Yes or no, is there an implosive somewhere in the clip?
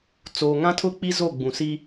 no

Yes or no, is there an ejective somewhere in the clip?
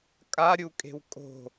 yes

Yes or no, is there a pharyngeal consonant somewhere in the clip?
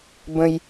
no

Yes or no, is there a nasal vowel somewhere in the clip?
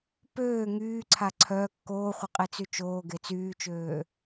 no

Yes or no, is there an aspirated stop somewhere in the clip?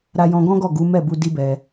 no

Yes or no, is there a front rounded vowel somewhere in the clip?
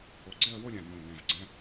no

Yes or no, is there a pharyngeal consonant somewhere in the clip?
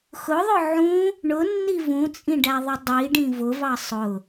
yes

